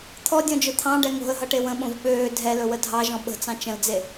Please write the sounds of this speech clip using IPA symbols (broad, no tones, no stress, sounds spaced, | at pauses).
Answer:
t̪ʰ ɔ dʲ ɔ̃ d͡ʒ ɵ t̪ʰ ɑ̃ ɖ ɛ ŋ o̤ ə̯ ɦ ʌ ʈ e w ə̃ ɓ õ v ɓ øː dʱ ɛ l ɵ w ə dʱ ɑ ʒ ɔ̃ ɓ ə̤ t͡s ɑ̃ t͡ʃ ə̃ l d͡z e